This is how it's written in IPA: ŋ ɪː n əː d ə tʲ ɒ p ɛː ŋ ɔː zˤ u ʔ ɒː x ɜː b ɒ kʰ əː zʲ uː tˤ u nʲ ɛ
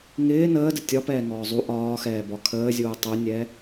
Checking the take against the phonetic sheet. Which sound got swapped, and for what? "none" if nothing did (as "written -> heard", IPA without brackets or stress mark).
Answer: ɜː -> ɛː